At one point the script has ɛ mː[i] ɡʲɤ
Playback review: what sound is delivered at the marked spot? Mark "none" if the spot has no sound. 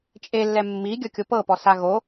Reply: i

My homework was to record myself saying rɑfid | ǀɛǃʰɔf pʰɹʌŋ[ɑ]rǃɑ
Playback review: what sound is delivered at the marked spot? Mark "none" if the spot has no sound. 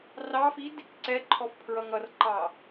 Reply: ʌ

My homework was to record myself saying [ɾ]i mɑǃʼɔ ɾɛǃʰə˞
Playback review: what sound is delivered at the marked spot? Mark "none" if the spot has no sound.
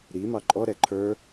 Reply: ɾ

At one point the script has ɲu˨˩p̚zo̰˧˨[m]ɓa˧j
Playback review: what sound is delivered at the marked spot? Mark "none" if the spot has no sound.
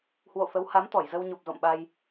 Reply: m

